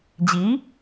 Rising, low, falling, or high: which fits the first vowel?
rising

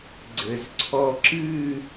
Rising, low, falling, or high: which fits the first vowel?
low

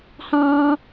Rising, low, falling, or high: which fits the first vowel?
high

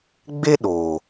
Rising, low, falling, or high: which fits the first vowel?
high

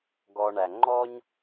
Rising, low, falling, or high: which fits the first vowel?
low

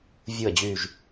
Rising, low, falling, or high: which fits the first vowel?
low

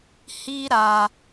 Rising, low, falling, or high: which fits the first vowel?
high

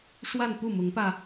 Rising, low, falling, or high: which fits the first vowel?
falling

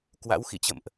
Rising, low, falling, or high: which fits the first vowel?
rising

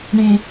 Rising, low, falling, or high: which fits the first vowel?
low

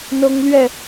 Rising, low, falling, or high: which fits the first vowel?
high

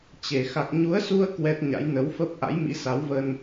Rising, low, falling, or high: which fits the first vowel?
low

